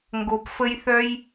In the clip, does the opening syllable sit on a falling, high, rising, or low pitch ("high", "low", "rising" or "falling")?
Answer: high